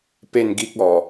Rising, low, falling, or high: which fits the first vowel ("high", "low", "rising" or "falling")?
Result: falling